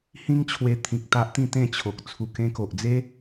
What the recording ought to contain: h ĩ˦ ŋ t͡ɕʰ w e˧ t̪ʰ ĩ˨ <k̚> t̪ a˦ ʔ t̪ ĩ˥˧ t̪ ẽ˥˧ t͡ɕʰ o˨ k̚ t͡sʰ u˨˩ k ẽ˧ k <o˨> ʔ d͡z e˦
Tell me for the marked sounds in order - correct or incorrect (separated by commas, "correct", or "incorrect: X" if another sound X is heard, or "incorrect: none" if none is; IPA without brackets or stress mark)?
correct, correct